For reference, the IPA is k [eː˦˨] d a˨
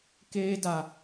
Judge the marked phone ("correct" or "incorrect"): incorrect